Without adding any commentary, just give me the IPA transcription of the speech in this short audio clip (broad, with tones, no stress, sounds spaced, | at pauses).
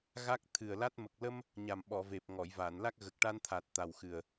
ɣ a˦˥ k̚ t̪ʰ ɨ˨˩ ə̯ l a˦˥ t̚ m ə˨˩ k̚ l ə˧ m | ɲ a˨˩ m ɓ ɔ˨˩˨ v e˨˩ p̚ ŋ ɔ˨˩˨ j v a˨˩˨ n l a˦˥ k̚ ɣ ə˨˩ k̚ ʈ a˧ n t̪ʰ a˨˩ t̚ t̪ a˨˩ w x ɨ˨˩ ə̯